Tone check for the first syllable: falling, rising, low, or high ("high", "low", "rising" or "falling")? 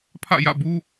falling